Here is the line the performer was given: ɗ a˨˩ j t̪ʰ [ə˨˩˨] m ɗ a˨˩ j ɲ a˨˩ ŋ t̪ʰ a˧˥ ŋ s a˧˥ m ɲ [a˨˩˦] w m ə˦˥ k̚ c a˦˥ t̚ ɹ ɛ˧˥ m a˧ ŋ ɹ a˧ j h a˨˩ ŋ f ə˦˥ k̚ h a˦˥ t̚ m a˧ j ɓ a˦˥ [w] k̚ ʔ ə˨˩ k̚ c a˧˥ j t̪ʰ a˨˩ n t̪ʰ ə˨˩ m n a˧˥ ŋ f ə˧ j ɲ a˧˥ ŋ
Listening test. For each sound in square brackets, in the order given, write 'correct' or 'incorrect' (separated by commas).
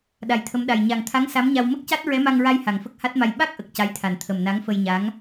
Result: incorrect, incorrect, incorrect